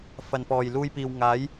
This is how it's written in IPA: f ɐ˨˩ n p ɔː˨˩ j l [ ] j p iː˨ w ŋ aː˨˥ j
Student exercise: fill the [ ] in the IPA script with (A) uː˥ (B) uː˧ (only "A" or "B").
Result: B